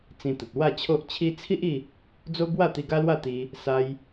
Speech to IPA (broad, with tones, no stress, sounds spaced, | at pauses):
t͡s ĩ˧ t̪ ə˨ t̚ w a˥˧ t͡ɕʰ o˦ ʔ t͡ɕʰ i˧ t͡sʰ i˦ ʔ i˥˧ | d͡z o˦ b w a˥˧ t̪ i˧ ɡ a˦ l w a˥˧ t̪ i˧ | s a˧ j